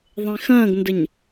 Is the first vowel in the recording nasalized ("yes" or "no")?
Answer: yes